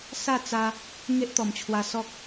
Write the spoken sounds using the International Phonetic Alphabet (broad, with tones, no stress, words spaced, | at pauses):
sa˥˧t͡sa˧ | ŋe˦ʔt̪ɔ˨˩mt͡ɕʰwa˧ sɔ˦k̚